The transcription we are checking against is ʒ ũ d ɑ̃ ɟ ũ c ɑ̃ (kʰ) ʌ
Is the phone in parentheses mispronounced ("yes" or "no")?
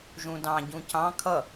no